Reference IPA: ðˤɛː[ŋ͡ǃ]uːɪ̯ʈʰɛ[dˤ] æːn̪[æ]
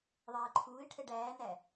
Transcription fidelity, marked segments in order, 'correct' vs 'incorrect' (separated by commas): incorrect, incorrect, correct